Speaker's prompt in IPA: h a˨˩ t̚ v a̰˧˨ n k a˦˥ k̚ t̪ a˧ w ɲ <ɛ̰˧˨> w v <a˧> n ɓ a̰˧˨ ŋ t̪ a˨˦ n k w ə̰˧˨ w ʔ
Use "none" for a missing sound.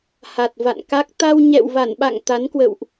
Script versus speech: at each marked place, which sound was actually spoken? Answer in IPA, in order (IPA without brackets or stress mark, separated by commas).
ɛ̰˧˨, a˧˩